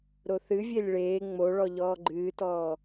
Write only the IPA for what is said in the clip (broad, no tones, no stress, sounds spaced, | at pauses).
ɾ o θ ɨ vʲ e lʲ ɭ eː ŋ͡m o ɭ ɔ ʎ ɔː ɡ͡ǃ ɨː t ɔː